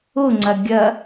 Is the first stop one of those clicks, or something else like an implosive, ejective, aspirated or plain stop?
click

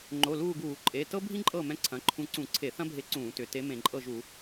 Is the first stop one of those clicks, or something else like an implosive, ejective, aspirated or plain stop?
click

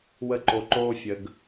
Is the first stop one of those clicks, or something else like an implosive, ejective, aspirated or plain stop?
click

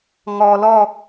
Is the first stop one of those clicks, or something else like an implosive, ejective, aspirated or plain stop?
plain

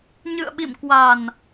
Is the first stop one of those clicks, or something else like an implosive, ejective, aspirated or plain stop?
implosive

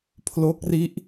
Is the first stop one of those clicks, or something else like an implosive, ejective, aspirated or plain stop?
aspirated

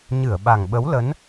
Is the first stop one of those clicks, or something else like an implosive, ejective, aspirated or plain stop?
implosive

